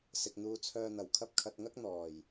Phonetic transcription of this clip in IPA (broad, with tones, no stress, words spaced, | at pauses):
sɪ˨k̚n̪uː˧t͡sʰœː˧n̪ɐ˨˩w kʰɐ˧p̚kʰɐ˨t̚ŋɐ˥k̚ n̪ɔː˨˩j